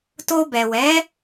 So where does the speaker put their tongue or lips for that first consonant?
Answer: tongue tip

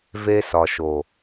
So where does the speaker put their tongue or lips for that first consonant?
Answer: lips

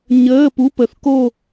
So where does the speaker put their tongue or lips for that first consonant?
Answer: palate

